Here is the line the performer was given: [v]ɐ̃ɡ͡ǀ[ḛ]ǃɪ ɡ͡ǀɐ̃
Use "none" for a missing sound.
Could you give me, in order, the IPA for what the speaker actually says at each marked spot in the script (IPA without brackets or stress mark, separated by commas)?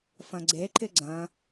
f, e